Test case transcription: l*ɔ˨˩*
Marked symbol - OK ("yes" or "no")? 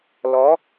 no